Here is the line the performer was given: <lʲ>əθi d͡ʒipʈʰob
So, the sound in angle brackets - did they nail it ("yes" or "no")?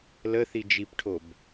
no